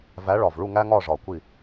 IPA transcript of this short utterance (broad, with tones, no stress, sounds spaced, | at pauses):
v æ˨˦ ɭ ɒ˨˩ v ɭ u˦˨ ŋ æ˦ ŋ ɒ˦˨ ʐ ɒ˨˩ kʷ i˦˨